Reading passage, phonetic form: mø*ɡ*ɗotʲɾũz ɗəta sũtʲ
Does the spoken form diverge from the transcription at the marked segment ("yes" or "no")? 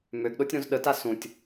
no